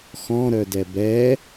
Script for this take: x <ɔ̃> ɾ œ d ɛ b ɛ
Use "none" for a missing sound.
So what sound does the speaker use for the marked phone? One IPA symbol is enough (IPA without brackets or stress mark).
ɔ̃